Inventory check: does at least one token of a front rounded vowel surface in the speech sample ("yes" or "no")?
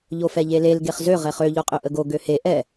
yes